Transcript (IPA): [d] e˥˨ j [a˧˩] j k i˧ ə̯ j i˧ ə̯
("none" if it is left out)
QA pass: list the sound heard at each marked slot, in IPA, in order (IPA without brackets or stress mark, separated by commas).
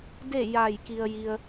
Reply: d, a˧˩